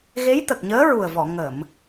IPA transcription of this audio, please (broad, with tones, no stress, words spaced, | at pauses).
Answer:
ɣe˧˥jt̪ə˨˩k̚ɲəː˧˥ ɹu˨˩ə̯vɔ˨˩˨ ŋə˨˩˨m